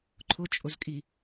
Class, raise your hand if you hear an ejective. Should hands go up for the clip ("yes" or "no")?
yes